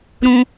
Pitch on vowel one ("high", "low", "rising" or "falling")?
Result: high